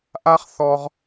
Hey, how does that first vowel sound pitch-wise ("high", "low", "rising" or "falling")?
high